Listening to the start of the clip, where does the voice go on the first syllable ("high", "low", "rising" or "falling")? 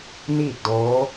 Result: falling